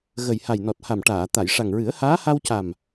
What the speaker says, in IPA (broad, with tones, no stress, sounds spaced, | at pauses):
ɣ ə˨˩ j h a˨˩ j n ɔ˨˩ t̚ h a˨˩ m ʈ aː˨˩˨ t̪ a˨˩˨ j ʂ a˨˩ ŋ ɹ ɨ˨˩˦ ə̯ h aː˧˥ h a˧ w c a˨˩ m